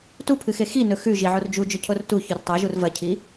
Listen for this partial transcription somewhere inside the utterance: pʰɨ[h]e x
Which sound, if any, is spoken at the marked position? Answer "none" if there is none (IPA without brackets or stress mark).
x